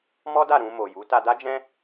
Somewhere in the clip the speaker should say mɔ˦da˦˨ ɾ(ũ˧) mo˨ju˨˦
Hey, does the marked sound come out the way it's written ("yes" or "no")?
yes